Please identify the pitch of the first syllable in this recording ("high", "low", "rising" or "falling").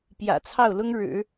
low